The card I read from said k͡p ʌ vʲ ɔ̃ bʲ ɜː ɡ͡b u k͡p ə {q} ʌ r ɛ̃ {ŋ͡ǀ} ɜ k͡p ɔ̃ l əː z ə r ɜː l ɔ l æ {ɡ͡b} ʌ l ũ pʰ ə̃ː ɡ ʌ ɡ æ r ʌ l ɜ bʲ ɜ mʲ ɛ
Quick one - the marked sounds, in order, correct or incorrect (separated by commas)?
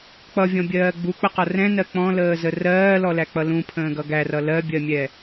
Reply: correct, incorrect, incorrect